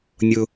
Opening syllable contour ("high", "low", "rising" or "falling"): high